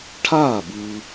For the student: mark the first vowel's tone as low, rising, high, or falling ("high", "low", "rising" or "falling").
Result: falling